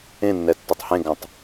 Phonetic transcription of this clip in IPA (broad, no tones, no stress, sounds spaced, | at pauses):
ẽ nː ɛ tː e tˤ h ẽ ɡ ã tˤ